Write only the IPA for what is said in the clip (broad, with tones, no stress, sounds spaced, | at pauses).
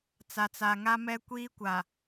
t͡s a˨ t͡s a˨ ŋ a˦ m ɛ˦ kʷ iː˦ kʷ a˨